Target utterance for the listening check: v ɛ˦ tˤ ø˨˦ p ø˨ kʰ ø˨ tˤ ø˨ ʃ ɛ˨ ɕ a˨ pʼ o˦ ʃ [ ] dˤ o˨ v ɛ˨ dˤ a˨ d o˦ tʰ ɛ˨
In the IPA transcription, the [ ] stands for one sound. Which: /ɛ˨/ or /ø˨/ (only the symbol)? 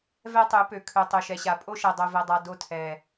ɛ˨